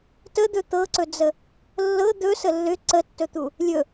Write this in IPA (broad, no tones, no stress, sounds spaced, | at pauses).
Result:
t ə d̪ ɵ t̪ ɤ ǀ ɵ d͡z ə | lː ɤ d̪ ɵ s ə lː ʏ ǀ ə tː ɵ t̪ u | lʲ ɵ